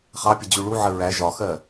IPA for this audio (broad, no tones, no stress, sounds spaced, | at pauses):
χ ɑ pʲ ə d͡ʑ u ɭ u ʕ ə ɹ æ ʒ ɒ x ɜ